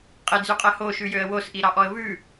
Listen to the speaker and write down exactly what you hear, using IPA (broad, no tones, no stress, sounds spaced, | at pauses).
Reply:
qʼ e d͡z y qʼ ɛ h o ʃ ʉ j ø ə̯ w o s ʔ i ɾ ɑ ʔ ɔ ə̯ v ʉ